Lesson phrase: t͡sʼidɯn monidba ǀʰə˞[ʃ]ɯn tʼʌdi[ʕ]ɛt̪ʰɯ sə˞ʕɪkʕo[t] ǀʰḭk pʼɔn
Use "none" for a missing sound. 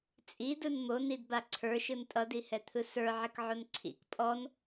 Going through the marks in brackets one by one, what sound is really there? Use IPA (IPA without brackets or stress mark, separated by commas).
ʃ, h, n